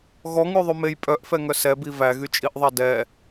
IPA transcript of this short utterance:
ɣ ɔ ŋ ʉ ðˤ ʉ m e j pʼ œ ʔ f ɛ ŋ œ s ɛ b i v æ ɣ y t͡ʃʼ i ʔ ðˤ ɑ d ɛ

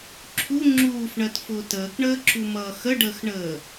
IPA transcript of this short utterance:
ǁʰ u ŋ͡ǁ uː f ɳ ɜ t f ʊː t əː k ɳ əː ǁ u m ʌː x ə ɖ əː x ɳ əː

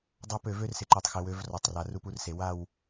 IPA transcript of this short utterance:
dˤ a˦ p ø˨ v ø˦ r s ɪ˨ ǃ ø˨ tˤ x ɪ˨ w ø˨˦ v r ɔ˨ tˤ r a˨ r u˦ p u˦ r s e˨ w a˦˨ w

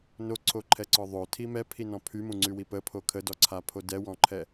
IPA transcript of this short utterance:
n o ǀʰ o ǃʰ ɛ ǀ ɔ ðˤ o tʰ i m ɛ pʰ i n ɔ̃ pʰ y m ũ ŋ͡ǀ y w i p ə pʰ o kʰ ə d ɔ ǀʰ a pʰ o d ɛ w ɔ̃ ǃʰ ɛ

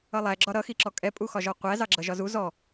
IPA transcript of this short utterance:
ʌ lˠ æ ɡ͡ǁ ɒ ɾ ʌ x i ǁ ɔ kʼ ɛ pʼ u x ɒ ʒ ɔ qʷ æ z ɑ ɡ͡ǁ ʌ ʒ ɒ z u z ɔ

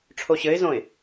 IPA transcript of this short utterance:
ʈ͡ʂʰ o ɕ ɘ ɪ̯ z õ ɪ̯

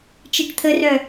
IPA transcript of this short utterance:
t͡ʃ i ʈ t̪ʰ ə r œ

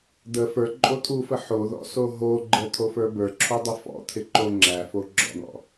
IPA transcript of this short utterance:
d̪ ə f ə˞ ǃʼ o t̪ʰ u f ə ħ o ð ɔ̰ s o ɦ o ɡ͡ǃ ə t̪ʰ o f ə˞ b ə˞ ǁʰ u dˤ ə f ɔ̰ t̪ʰ ɪ ǃ o ŋ͡ǁ æ f o ɡ͡ǁ ɔ̰ n̪ ɔ̰

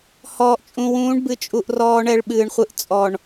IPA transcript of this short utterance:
h ɔː˨ ʔ t͡ʃʼ ũ˨ w ũː˨˦ ɳ b ɨ˨ t͡ʃʼ u˨ ʔ r ɔː˦ ɳ ɛ˦ ɭ ɓ ɨː˨ ɳ χʷ ɨ˦ ʔ t͡sʼ ɔ˨ ɳ

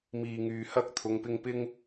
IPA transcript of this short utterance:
m iː˨ ŋ yː˨ h ɐ˥ k̚ t̪ʰ ʊ˨˧ ŋ p ɪ˧ ŋ p ɪ˧ ŋ

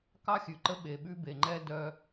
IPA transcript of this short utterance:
k ɑ˦ xʲ ʉ˨ ǃ ə˦ ɓ e˨ ɓ ʉ˦ b e˨ ŋ͡ǃ ɛ˦ d œ˨

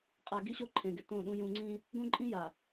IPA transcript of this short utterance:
qʼ a˨ ɡ i˦ ɕ o˦ ǃʰ ẽ˨ ɡ ɪ˨ t õ˦˨ ɗ ũ˦ j ũ˦ ŋ͡ǀ ĩ˦ | ɡ õ˦ ǃʼ ĩ˦ j a˨

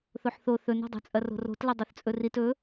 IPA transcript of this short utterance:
θ o ħ θ o θ ɵ n o̤ dˤ ṳ t͡sʼ ɐ r o̤ r o̤ t l ɐ dˤ œ θ t͡sʼ ɵ r i t ɵ

